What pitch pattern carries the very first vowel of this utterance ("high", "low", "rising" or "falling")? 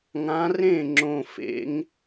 rising